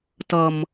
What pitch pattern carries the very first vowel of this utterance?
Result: high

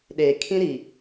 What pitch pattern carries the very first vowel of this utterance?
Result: low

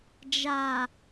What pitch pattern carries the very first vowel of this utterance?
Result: low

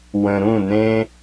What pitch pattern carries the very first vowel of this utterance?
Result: low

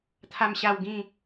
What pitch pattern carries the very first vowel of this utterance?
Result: low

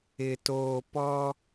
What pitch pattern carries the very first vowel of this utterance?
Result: low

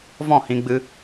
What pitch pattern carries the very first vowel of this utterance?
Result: falling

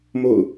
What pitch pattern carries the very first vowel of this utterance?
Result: falling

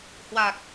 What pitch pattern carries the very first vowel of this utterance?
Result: low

